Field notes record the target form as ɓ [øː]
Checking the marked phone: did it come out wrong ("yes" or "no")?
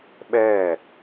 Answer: yes